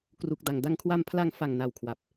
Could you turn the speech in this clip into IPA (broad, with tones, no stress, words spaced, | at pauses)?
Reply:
kru˨˩k̚da˨˩ŋ da˧ŋkʰwa˧m pʰla˧ŋfa˨˩ŋ na˨˩w kʰwa˨˩p̚